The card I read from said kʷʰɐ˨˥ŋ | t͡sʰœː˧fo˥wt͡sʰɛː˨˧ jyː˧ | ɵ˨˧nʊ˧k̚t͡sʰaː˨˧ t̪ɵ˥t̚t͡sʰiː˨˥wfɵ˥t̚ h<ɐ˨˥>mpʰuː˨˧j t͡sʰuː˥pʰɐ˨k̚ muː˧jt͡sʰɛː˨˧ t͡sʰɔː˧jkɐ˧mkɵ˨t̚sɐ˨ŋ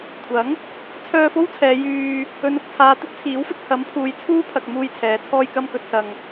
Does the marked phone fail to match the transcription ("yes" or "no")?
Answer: no